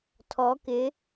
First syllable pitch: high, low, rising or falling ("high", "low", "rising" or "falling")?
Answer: rising